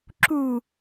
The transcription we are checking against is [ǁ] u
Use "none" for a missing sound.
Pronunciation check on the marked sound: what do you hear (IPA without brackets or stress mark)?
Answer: ǁ